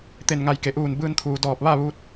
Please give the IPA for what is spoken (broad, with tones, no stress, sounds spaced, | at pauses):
t̪ e˧˩ n ŋ a˧˩ j k e˩˧ ʔ uː˧˩ n b ɯː˧ n t̪ʰ uː˩ d ɔː˧˩ p̚ ʋ a˥˨ ʋ uː˧ t̚